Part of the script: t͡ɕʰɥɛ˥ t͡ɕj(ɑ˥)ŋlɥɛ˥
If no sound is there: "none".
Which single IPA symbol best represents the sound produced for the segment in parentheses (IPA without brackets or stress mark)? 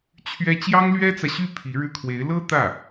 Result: ɑ˥